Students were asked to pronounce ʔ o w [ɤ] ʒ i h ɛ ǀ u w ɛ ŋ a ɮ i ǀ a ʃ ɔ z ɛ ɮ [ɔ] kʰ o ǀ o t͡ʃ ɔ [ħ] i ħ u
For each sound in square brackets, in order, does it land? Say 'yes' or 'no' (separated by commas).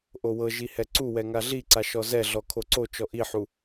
yes, yes, no